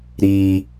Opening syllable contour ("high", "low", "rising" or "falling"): high